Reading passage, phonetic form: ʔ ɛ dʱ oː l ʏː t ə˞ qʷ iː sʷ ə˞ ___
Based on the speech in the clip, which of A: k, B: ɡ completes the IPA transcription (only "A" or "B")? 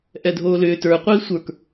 A